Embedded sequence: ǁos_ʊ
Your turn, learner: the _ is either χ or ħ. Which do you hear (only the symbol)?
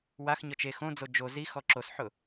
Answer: ħ